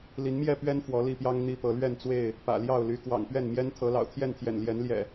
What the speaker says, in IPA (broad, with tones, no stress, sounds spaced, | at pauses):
l i˨˦ n m j ɛ˥˨ p ɥ ɛ˦ n f w ɔ˨˦ l i˥˨ p j ɑ˦ ŋ n̪ i˦ p ɤ˨˦ l ɥ ɛ˥˨ n t͡s w e˥˨ ɪ̯ | p ä̰˨˩ l j ɑ˥˨ ʊ̯ l y˨˦ k w ɑ̰˨˩ ŋ p ɥ ɛ˥˨ n m j ɛ˦ n t̪ʰ ɤ˨˦ l ɑ̰˨˩ ʊ̯ t̪ʰ j ɛ˥˨ n t̪ʰ j ɛ̰˨˩ n l j ɛ˨˦ n l j ɛ̰˨˩